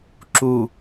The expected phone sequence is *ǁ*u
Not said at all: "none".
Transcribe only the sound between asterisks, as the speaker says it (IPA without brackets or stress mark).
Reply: ǁ